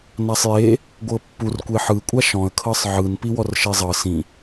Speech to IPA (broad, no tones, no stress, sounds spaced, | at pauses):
n a sˤ j e | ɡʷ ɤ pː u r kʷ e ħ ɯ kʷʼ a ʃ ɔ̃ ə̯ kʰ ɤ sˤ ʕ ɯ n p i w ɔ r ʃ e zˤ ɤ s ĩ